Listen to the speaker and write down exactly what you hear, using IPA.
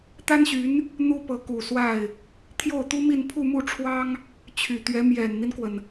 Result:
t̪ a˥ n ɕ y˧˥ n | n̪ u˥ p ɤ˧˥ k u˨˩ s w a˥˩ ɪ̯ | t̪ʰ j o˥˩ ʊ̯ t̪ u˥ m i˥˧ n pʰ u˥˧ m u˥˩ ʈ͡ʂʰ w ɑ˥ ŋ | t͡ɕʰ y˨˩ t̪ ɥ ɛ˧˥ m j ɛ˨˩ n n̪ i˦ n k w ə˩ n

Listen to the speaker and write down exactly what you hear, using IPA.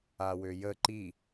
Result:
a w ø j ə ǃ i

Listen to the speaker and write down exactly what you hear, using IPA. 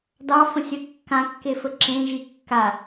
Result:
d ɑ f ə̃ sʲ ə kː ã kː e f ə ǁ ẽ ʒ i kː a

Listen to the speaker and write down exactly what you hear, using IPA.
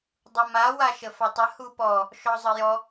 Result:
dˤ u m a w a ʃ ə f a tˤ ə h u p ɔ | ʃ ɔ zˤ ə j ɔ

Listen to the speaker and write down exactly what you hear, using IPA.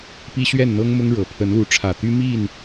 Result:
p i˦ ɕ ɥ ɛ˥˨ n n̪ ɤ˦ ŋ m ʊ˦ ŋ ɻ ɤ˨˩ pʰ ə˨˦ n l u˨˦ ʈ͡ʂʰ ä˨˩ t̪ y˦ m i˥˨ n

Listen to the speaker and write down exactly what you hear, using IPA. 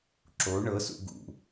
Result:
ǁ o ɳ ɤ s ṵ ɡ ṵ

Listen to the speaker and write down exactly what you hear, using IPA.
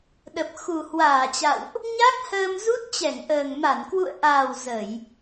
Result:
ɗ ə˨˩ p̚ x u˨˩ h w aː˧˩ t͡ɕ a̰˧˨ w ʔ | ɲ a˦˥ k̚ h əː˧ m z u˦˥ t̚ t͡ɕ ɛ˧˩ ŋ ʔ əː˨˩ ŋ m a˧˩ n k w ṵ˧˨ ə̯ ʔ aː˨˩ w z ə˧˩˨ j

